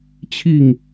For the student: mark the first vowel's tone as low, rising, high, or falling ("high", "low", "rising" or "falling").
falling